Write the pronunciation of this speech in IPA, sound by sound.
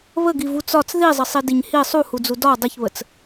β ə ɡ i v u t͡s ɒ t͡s ð i zˤ ə sˤ i d i ɲ h i sˤ u h u d͡z u d ɒ dˤ ə ç β ə t͡s

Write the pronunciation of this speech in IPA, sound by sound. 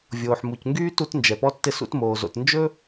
vʲ oː˩ ħ m u˩ c ŋ ɡ yː˥ t u˥ t n d͡ʒ ɛ˩ p ɔ˥ tː ɪ˥ s ṵ˥ t m oː˩ z o̰˩ t n d͡ʒ ɵ˥

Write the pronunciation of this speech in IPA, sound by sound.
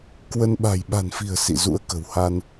k w ə˧ n ɓ a̤˨˩ j ɓ a̤˨˩ n f i̤˨˩ ə̯ s ḭ˧˨ z ṵ˧˥ ə̯ k ə̤˨˩ w h a˧ n

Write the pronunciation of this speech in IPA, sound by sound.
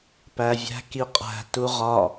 p æ vʲ æ̤ k i qʼ æ̤ t u ʁ ɒ

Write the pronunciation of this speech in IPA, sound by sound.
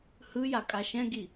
h ɯ j a kʼ a ʃ ɛ̃ ɡ i

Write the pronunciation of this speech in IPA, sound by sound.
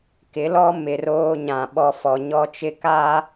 k ɪ˨˦ l ɔ˦ m ɪ˨ r oː˦ ɲ ã˨ ɓ ɔ˦ f ɔ˨ ɲ ɔ˦ t͡ʃ ɪ˦ k a˦

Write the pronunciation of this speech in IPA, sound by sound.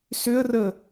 s ʏ ə̯ r ə

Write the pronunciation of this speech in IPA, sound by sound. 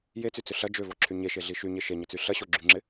j e t͡s y t͡s ʏ ɬ ɐ d͡ʒ ø v ɔ ǁʰ y ɲ e ʃ e ɮ i ʃ y ɲ e ʃ e ɲ ə t͡s y ɬ ɐ ɕ o ɡ͡ǁ y ŋ͡ǁ ɪ

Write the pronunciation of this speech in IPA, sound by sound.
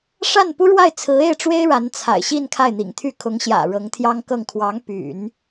ʂ a˥˩ n p u˥ ɻ w a˥˩ ɪ̯ t͡sʰ ɹ̩˧˥ e˥˩ ɪ̯ ʈ͡ʂ w e˥ ɪ̯ ɻ a˧˥ n t͡sʰ a̰˨˩ ɪ̯ ɕ i˥˧ n kʰ a˥˩ ɪ̯ n̪ ḭ˨˩ ŋ t̪ʰ y˥˩ kʰ ʊ˧˥ ŋ ɕ j ä̰˨˩ ɻ ɤ˧˥ ŋ t̪ʰ j ɑ˥ ŋ k ɤ˥˩ ŋ kʰ w ɑ˧˥ ŋ p y̰˨˩˦ n

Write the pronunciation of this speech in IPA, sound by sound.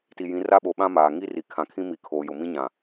t i˨ j ĩ˨˦ r a˦ ɓ o˨ ɓ ã˦ m aː˨ ŋ i˦ r i˨ kʰ ã˨ kʰ ĩ˦ m i˨˦ kʰ oː˨ j ʊ˨ m ĩ˦ ɲ ã˨

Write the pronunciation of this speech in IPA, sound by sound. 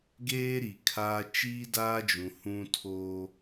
ɡ eː˦ ɾ i˨ kʰ aː˦ t͡ʃ iː˦ d aː˦ d͡ʒ ũ˨ h ũ˦ tʰ oː˦

